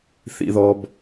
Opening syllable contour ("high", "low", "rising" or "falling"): high